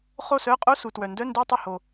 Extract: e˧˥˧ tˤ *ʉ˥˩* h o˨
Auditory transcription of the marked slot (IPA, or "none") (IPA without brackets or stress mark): ə˥˩